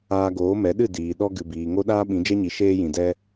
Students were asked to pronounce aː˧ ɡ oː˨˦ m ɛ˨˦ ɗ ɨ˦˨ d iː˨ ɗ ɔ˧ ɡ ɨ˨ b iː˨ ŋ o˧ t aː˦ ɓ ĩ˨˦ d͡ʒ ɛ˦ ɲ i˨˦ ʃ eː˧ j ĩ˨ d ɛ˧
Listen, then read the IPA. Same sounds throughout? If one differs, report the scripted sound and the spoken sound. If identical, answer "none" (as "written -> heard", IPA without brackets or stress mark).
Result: t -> ɗ